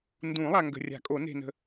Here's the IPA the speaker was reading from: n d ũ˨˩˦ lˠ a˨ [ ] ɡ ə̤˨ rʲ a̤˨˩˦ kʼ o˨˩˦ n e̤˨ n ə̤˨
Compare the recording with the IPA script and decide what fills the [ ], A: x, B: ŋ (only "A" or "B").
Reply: B